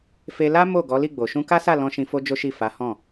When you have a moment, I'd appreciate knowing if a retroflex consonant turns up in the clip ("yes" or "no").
no